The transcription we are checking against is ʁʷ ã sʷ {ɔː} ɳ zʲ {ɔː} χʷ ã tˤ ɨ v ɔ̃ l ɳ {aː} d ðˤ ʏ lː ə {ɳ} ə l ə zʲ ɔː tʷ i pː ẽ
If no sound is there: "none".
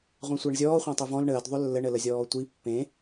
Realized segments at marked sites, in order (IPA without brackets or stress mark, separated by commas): əː, ɔː, əː, ɳ